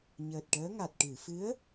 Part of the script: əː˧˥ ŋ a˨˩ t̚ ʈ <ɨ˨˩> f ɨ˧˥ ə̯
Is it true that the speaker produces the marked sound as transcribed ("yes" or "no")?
no